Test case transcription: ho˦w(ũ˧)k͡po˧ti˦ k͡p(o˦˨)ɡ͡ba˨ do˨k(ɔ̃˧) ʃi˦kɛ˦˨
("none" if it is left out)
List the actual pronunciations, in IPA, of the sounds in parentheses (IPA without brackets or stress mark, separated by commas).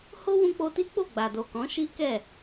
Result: ũ˧, o˦˨, ɔ̃˨˦